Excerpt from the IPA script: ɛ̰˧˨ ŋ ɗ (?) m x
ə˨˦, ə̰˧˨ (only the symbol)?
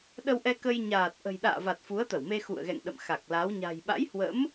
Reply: ə̰˧˨